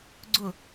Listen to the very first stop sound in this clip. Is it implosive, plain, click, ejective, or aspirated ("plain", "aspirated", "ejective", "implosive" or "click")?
click